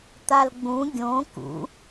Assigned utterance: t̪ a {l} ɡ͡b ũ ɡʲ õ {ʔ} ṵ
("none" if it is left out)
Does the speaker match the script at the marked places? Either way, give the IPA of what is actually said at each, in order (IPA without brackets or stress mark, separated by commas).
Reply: l, k